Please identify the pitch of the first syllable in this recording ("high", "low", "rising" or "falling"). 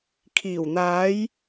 low